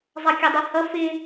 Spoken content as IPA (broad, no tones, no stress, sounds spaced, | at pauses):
zˤ ʌ kʲ ɒ dˤ ɛ h ʌ f ɪ